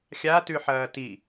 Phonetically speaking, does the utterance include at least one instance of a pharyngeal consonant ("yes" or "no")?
yes